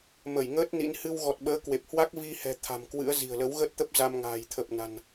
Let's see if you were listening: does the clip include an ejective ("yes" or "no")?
no